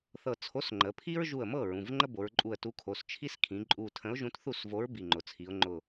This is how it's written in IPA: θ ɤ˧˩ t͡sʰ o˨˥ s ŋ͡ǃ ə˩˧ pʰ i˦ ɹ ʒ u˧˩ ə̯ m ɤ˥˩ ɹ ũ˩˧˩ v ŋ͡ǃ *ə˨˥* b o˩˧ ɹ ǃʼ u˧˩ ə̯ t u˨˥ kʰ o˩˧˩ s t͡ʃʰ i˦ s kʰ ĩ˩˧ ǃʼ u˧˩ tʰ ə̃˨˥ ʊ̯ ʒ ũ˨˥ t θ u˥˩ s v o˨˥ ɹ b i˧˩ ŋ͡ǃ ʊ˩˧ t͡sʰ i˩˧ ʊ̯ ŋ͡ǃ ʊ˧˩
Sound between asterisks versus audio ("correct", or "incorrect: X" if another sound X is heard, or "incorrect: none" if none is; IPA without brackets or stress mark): incorrect: ə˦